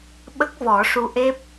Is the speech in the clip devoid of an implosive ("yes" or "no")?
no